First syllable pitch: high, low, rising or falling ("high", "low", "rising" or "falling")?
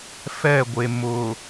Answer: falling